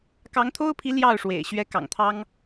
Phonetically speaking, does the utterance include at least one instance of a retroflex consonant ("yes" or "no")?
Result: yes